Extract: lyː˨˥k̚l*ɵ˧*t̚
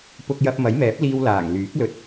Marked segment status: correct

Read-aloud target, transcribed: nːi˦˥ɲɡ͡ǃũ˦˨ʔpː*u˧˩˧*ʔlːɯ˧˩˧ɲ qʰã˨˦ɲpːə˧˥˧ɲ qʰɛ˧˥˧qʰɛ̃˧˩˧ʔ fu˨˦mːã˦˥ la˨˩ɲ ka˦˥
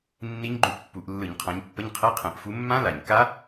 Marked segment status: correct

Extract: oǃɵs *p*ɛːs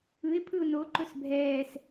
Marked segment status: incorrect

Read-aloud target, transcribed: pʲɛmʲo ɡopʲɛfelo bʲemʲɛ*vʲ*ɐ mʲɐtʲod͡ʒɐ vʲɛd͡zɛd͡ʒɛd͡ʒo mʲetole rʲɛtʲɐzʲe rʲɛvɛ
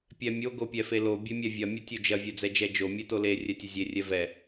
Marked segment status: correct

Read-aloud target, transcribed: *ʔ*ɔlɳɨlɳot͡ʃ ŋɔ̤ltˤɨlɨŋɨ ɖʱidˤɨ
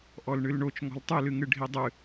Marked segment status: correct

